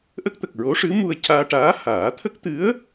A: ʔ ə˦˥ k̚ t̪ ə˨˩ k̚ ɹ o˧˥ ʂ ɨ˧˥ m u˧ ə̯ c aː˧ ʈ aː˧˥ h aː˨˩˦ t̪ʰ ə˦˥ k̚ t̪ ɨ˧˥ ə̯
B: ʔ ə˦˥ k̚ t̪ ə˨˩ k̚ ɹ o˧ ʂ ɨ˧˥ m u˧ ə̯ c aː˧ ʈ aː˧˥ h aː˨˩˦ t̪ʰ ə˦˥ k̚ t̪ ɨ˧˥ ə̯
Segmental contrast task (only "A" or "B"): A